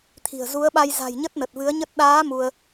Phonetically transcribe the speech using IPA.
t̪ʰ i̤˨˩ ə̯ z u˨˦ ə̯ ɓ a˧ j z a̤˨˩ j ɲ ə˦˥ t̚ n ə˨˩ t̚ v ɨ˨˦ ə̯ ɲ ə˦˥ t̚ ɗ aː˨˦ m u˧ ə̯

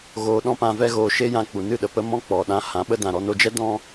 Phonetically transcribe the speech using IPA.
ɣ oː˧ ɗ ɔ̃˦ p ã˧ v ɛ˦ ɣ oː˧ ʃ e˦ j ã˧ k͡p u˨ n ɨ˦˨ ɗ ə˨ p ə˧ m ɔ̃˦ k͡p ɔ˨ ɗ ã˧ h ã˨˦ ɓ ə˦ d ã˨ ɾ ɔ˧ n o˧ d͡ʒ ɛ˦ d ɔ̃˦

